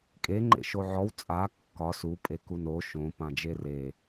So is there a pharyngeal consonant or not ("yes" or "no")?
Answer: yes